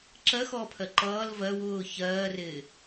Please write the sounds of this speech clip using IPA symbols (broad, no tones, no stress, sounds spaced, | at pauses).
ǁ ɜ x ɔː pʰ ɜ ǃ ʌː l v ɜ w ʊː ç ɜː r ɪː